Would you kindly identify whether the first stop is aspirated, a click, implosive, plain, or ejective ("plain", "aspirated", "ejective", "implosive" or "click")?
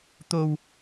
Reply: plain